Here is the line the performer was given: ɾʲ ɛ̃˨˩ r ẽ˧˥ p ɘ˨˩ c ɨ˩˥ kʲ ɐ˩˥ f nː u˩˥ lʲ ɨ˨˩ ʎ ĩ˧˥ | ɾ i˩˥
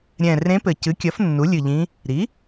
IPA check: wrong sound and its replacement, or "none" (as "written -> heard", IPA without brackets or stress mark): none